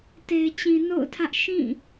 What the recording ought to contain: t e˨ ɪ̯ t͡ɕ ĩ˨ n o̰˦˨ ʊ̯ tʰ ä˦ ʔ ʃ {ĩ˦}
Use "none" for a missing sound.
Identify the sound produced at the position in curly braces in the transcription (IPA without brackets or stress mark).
ĩ˦˨